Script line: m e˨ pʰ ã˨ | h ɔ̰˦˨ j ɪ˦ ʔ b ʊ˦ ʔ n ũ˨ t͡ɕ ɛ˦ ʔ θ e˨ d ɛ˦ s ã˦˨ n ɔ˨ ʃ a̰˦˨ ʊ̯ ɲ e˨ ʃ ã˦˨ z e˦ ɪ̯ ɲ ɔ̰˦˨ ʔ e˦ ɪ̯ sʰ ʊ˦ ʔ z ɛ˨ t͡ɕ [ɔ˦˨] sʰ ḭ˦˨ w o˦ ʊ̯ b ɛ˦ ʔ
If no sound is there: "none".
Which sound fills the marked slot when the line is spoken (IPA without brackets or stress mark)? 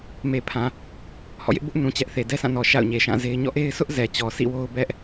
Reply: ɔ˨